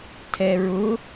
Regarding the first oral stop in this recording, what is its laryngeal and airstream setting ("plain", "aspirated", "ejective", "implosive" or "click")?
aspirated